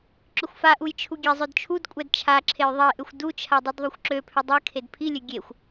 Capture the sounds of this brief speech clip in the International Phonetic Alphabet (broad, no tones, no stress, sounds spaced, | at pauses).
ǁ ʏ xʷ f a ʔ u j t͡ʃʰ u ɡʲ e zˤ ø d t͡ʃʰ u d kʷʼ ɛ d t͡ʃʰ a ǁʰ e j ðˤ e ʔ ʏ xʷ d u t͡ʃʰ a dˤ y d ðˤ u xʷ ǁ ø pʰ ʏ dˤ ɛ kʰ e d pʰ i lʲ ø ɡʲ e xʷ